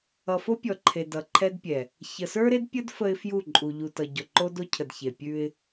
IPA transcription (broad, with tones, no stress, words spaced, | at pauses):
ʌ˨fo˦pʲɔ˨ ǃʰe˨dʌ˨ǃʰɛ˦dpʲɛ˨ | çə˨sə˞˦ɾe˦dpʲə˦d fə˦ɪ̯fju˦˨ǃʼu˨ ʎu˨tʌ˨ ɟɔ˨ǃo˦do˦cʰə˨d çe˨ pʲʉ˦ɪ̯